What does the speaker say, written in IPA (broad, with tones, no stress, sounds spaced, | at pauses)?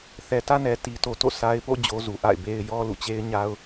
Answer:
θ ɛ˨ t ä˦ n ɛ˨ t i˨ t o˨ t o̰˦˨ s a˦ ɪ̯ p o̰˦˨ d͡ʑ o˨ z u˨ ʔ a̰˦˨ ɪ̯ b e˦ ɪ̯ j ɔ˦ l ṵ˦˨ t͡ɕ e˦ ɪ̯ ɲ a˦ ʊ̯